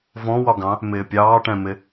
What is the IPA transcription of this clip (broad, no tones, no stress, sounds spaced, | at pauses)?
v ɔ̃ w ɒ ɡ ɑ̃ | m ɪː pʲ ɑː ʈ ɛ̃ m ɪ